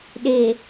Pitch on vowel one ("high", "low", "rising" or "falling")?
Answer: low